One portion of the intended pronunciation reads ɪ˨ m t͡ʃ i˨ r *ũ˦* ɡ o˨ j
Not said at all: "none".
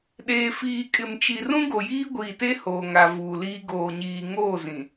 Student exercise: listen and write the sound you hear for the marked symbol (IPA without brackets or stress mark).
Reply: ũ˦